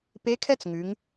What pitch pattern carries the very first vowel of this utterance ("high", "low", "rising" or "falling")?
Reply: rising